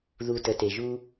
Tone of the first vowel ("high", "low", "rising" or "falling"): low